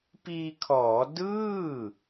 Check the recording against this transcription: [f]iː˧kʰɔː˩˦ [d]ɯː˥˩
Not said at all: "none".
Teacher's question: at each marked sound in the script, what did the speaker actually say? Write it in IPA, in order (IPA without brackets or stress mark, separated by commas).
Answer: p, d